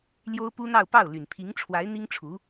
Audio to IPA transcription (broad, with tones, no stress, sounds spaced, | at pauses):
l j o˥ ʊ̯ p u˥ n̪ ɑ˥˧ ʊ̯ p ɑ˥˩ ʊ̯ l y˨˩ n pʰ i˧˥ ŋ ʈ͡ʂʰ w a˧˥ ɪ̯ n̪ i˥ ŋ ʈ͡ʂʰ u˧˥